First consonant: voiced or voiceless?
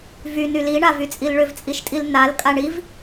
voiced